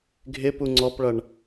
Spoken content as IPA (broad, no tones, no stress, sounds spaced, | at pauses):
ɡʱ ɪ p u ŋ͡ǀ ɔ p ɭ ʌ ɳ